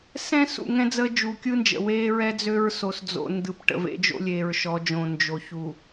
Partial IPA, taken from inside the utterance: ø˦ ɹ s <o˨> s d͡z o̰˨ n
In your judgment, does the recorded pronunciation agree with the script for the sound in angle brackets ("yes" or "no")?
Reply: yes